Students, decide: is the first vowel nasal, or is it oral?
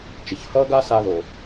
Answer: oral